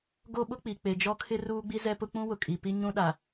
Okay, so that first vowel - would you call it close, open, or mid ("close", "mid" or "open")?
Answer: mid